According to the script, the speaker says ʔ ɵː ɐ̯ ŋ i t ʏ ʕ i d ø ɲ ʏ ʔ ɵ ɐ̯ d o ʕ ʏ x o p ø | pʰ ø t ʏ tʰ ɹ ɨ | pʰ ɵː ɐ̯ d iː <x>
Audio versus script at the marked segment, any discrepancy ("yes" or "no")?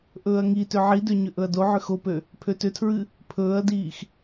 no